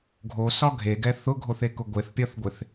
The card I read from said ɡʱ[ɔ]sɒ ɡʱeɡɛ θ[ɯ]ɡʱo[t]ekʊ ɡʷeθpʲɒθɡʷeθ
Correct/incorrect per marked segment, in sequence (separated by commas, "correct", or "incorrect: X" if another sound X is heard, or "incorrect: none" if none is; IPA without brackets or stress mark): incorrect: o, incorrect: ʊ, incorrect: θ